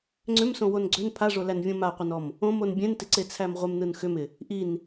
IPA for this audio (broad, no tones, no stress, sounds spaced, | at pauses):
ŋ͡ǀ ʏ m s õ w o n ɡ͡ǀ ʏ n pʰ a ʐ o l æ n vʲ õ m a qʷ ɯ n ɔ m | õ m o n bʲ ẽ n t ɪ ǀ e t͡sʰ æ m ʁʷ ɪ m n ɯ n x ʏ m ɪ | ʔ i n